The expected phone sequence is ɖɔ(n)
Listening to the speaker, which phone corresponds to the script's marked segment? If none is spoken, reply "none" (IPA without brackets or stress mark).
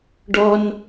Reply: n